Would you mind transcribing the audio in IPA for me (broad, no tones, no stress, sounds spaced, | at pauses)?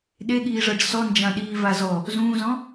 ɗ e ɠ iː ʐ ɤ ɖ s ɔ n d͡ʒ ã ɗ iː v a z ɔ | z ũː z ɔ̃